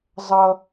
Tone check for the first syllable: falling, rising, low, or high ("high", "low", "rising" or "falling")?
low